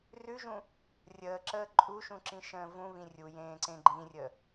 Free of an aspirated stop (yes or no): yes